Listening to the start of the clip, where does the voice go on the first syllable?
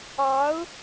rising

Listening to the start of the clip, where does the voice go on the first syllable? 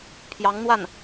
rising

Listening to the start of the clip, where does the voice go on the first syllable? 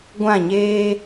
falling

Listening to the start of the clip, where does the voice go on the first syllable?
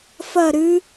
falling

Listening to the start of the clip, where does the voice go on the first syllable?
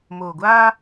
low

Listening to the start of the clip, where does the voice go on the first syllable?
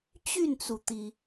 falling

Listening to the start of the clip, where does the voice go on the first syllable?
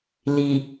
low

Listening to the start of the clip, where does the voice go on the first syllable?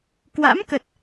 rising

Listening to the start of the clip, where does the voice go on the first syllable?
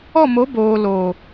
falling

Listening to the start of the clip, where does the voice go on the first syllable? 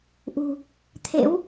low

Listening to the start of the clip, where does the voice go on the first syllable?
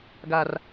low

